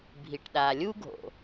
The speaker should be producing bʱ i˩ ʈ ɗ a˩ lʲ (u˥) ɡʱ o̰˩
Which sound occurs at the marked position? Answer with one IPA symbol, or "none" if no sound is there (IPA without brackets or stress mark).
u˥